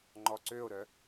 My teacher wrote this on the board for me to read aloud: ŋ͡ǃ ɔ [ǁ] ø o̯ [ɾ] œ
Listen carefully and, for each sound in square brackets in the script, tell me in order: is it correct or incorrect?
incorrect: ǀ, correct

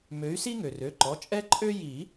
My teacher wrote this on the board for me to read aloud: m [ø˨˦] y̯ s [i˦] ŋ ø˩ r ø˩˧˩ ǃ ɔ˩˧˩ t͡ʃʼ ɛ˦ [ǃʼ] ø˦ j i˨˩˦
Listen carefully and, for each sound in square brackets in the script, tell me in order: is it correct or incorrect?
correct, correct, correct

